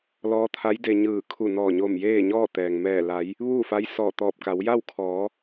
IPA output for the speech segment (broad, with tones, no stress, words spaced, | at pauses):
lɔː˧˥t̪ʰa˧˥jde˧ɲɯː˧˩ kʰu˧˩nɔː˧˩ɲo˧˩m jeː˥˨ɲɔː˥˨ t̪ɛː˩ŋmɛː˧˩la˩˧j | ʋuː˥˨fa˧˥jsɔː˧˩ t̪ɔː˧˩p̚ka˩˧wja˥˨w kʰɔː˩˧